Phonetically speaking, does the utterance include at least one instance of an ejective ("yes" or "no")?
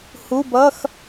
no